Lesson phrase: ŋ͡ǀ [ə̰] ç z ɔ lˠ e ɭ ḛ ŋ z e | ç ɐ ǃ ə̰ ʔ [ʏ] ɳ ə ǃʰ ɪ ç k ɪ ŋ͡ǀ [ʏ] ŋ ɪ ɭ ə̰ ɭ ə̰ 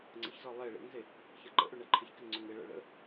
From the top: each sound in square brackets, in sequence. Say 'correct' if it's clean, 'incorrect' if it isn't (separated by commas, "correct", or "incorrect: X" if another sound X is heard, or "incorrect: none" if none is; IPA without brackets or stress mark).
correct, correct, correct